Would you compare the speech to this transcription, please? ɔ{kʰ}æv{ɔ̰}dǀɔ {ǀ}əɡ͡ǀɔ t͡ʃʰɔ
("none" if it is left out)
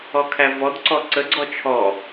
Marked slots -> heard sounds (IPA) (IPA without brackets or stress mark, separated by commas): kʰ, ɔ, ǀ